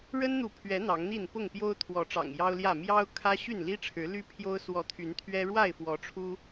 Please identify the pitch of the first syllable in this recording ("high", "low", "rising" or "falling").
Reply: high